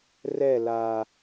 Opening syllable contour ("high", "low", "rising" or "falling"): falling